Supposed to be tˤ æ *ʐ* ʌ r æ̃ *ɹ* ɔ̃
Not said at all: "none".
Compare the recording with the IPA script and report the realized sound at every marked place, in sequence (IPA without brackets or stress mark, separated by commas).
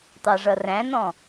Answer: ʐ, n